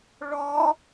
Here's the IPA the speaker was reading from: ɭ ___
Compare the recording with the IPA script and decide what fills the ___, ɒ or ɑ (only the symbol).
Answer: ɒ